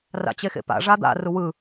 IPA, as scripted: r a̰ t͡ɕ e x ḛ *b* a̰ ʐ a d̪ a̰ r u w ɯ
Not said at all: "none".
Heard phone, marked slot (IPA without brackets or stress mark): p